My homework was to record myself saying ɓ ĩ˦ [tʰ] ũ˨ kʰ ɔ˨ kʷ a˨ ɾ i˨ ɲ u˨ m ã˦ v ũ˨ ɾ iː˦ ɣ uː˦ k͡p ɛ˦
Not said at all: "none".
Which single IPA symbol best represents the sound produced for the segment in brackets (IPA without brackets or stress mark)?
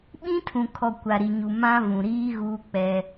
tʰ